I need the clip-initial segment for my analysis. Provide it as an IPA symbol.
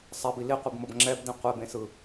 sˤ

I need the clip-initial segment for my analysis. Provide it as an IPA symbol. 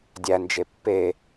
dʲ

